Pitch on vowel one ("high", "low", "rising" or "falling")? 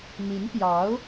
rising